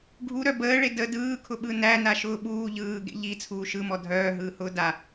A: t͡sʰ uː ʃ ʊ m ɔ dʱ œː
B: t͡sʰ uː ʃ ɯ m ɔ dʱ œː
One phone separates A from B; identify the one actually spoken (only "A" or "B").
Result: B